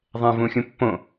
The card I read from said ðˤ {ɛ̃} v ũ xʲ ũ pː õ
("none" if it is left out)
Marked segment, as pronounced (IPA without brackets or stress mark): ɛ̃